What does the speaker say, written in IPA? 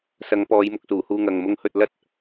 s ɐ˨˧ ŋ p ɔː˨˧ j m ʊ˨ k̚ s uː˨˩ h uː˨ ŋ ɐ˨ ŋ m ʊ˨˧ ŋ h ɵ˨ t̚ l ɐ˥ t̚

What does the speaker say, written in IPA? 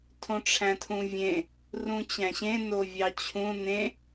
tʰ õ ʈ͡ʂʰ æ̃ tʰ ũ vʲ ẽ | r ũ t͡ɕ æ̃ ɕ ẽ n o vʲ ɑ t͡ɕʰ ũ n ẽ

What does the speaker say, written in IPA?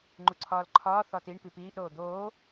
ŋ͡ǃ u ǀʰ ɒː l ǃʰ ɒː θ ɒ t i ɳ p i p iː ʔ ɾ oː d̪ oː

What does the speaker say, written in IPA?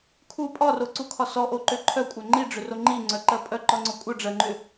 kʰ u pʼ ɒ r o ǀ u kʰ ɒ s ɔ ʔ o ǃ ʏ ǃʰ œ kʷʼ œ ŋ͡ǃ i ɖ͡ʐ ʏ r o ŋ͡ǃ i ŋ͡ǀ œ ǃ ɜ pʼ œ ǃ ɒ ŋ͡ǀ ɔ kʷʼ œ ɖ͡ʐ ɜ ŋ͡ǃ ʏ

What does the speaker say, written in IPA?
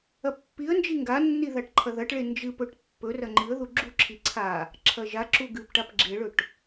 ɐ pː i ə̯ n d͡ʒ i ŋ ɡ a nː i ð a ʈ ǃʰ ɐ ð ɐ ʈ ɭ e n d͡ʒ ɨ p ɵ ʈ pː ɵ r ɐ ŋ͡ǃ ɨ ə̯ ð u ɡ͡ǁ u ǁʰ i ǀʰ a | ǁʰ ɐ ʒ a ǁ u ɡ ɨ p ʈ a p ɡ͡ǁ e ɭ ɵ ʈ

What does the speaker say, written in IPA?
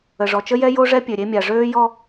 ə˨ ʐ ɔ˨ t͡ʃ ə˦ j ɛ˦ j o˦ ʐ ɛ˦ pʲ ø˨ ɾʲ e˦ mʲ a˨ ʐ øː˦ j ɔ˦

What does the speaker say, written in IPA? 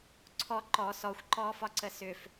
ǀʰ ɔ ǃ ɔ s ɔ xʷ ǃ ɔː f ɒ ǀ ə s ʏ f

